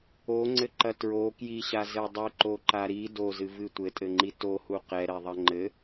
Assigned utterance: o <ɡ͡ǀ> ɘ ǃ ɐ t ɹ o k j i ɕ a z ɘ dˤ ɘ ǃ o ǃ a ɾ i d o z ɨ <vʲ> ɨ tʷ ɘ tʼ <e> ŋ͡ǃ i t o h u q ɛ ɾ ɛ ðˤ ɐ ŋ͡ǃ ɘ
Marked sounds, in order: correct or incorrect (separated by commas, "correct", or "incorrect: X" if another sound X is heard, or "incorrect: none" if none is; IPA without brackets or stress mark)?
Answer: incorrect: ŋ͡ǀ, incorrect: v, incorrect: ɘ